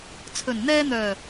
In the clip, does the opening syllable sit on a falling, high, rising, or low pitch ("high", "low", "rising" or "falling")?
low